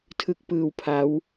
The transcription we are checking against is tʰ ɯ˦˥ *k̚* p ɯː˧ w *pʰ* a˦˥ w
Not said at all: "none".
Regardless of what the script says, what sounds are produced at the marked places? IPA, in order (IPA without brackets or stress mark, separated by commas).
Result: k̚, pʰ